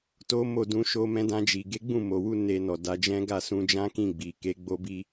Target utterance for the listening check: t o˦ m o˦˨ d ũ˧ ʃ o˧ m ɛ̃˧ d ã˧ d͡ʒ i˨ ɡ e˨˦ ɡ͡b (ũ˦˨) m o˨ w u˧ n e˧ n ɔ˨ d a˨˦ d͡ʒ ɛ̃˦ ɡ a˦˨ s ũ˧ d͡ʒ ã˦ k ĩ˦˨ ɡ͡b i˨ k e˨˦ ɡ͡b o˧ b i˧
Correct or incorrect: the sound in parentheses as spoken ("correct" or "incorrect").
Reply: correct